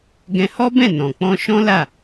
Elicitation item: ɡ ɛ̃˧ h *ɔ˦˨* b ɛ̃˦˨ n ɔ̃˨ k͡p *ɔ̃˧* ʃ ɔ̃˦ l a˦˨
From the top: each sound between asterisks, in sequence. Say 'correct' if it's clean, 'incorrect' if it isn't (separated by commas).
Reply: incorrect, correct